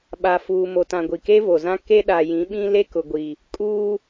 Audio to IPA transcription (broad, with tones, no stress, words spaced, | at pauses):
ɓa˨fuː˨mo˨tã˨ ɡʷi˨ke˦vo˨zã˦ ke˦ɗa˨jĩ˨˦ɓĩ˦ le˦kʊ˨ɡʷi˨ | kʼuː˦